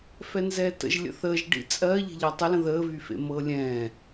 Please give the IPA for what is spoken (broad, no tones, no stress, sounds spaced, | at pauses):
f ɛ n z ɛː t ə̰ ʒ lʲ ə̰ θ əː ʒ ɖ ḭ t͡sʼ ɜ ʎ e̤ ʎ ɜ tˤ ə l ə̃ ð əː v y f ḛ m ɤː lʲ ɛ̃ː